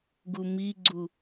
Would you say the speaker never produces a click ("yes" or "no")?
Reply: no